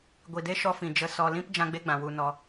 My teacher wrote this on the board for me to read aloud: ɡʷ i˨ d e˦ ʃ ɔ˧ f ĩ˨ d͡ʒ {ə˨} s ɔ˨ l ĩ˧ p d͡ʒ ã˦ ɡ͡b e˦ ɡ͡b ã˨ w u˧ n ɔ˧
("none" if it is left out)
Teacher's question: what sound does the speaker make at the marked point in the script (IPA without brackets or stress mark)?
ə˨